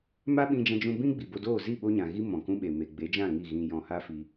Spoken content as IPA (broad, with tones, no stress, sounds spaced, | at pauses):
m a˦ ɓ ĩ˧ d͡ʒ ã˧ d͡ʒ ũ˧ b ĩ˦ ɡ͡b i˨ b o˧ d oː˦˨ z i˦˨ ɓ o˧ ɲ ã˨ ɣ i˦ m ɔ̃˨ k ũ˦ ɓ e˨ m e˨ ɡ͡b e˨˦ d͡ʒ ã˦˨ ŋ i˦˨ ɣ ĩ˧ j ɔ̃˧ h a˦ f i˧